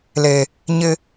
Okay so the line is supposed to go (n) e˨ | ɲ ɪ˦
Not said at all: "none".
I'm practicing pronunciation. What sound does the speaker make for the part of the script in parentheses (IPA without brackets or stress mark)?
l